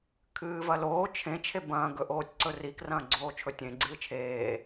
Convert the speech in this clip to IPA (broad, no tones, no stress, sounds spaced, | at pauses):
kʰ ɨː v ɐ l oː t͡ʃʰ ẽ t͡ʃʰ e b ɐ̃ː ɡ ɵ ʔ oː tʲ ǀ ɵ r i k r ɐ̃ː ɡ͡ǀ oː t͡ʃʰ ɵ tʲ ẽ ɡ͡ǀ ɨː t͡ʃʰ eː